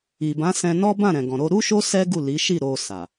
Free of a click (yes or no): yes